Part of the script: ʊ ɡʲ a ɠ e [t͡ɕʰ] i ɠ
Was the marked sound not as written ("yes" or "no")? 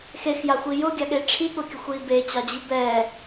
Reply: yes